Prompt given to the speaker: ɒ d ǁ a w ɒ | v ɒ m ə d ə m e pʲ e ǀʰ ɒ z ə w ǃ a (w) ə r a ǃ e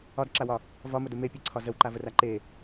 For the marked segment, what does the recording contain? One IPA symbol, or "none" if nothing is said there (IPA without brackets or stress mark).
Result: v